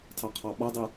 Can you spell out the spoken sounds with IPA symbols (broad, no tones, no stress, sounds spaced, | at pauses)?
tʰ ɑ qʰ ɑ ɓ ʌ dˤ ɛ